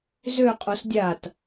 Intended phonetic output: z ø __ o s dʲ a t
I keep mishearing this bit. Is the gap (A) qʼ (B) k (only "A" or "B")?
A